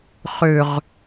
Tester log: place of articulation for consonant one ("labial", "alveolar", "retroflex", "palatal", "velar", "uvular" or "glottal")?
uvular